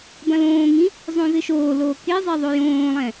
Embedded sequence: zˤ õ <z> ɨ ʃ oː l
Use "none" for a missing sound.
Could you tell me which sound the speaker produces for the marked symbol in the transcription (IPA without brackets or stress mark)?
z